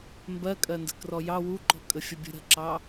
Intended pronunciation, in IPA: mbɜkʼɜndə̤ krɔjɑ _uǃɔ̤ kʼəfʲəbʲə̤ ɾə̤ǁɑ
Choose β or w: w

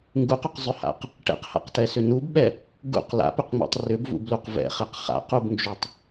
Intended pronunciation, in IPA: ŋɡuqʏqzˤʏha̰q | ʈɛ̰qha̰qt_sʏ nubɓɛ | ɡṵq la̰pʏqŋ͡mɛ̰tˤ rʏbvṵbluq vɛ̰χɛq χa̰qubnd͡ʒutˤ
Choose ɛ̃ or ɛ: ɛ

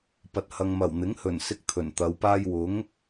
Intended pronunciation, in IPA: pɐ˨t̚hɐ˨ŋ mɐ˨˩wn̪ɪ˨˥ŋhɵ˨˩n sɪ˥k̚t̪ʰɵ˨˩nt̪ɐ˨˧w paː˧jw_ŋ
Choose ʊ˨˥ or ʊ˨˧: ʊ˨˥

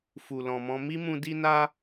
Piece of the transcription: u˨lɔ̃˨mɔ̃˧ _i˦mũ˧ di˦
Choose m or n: m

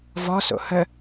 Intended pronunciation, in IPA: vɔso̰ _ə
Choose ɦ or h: h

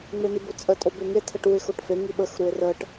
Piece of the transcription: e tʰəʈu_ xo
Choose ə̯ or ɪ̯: ɪ̯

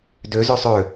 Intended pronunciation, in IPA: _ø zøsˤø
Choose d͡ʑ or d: d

